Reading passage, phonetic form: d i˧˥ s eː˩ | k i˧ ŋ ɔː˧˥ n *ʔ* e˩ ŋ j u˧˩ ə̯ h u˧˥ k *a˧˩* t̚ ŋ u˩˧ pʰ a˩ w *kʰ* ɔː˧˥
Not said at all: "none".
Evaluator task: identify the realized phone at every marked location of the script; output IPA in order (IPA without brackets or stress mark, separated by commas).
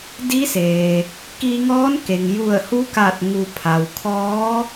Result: k, a˧˩, kʰ